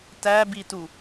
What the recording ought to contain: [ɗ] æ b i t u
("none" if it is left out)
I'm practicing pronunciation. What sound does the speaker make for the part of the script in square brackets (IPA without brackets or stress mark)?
t